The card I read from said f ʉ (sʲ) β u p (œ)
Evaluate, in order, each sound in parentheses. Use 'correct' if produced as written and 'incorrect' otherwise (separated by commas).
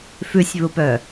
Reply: correct, correct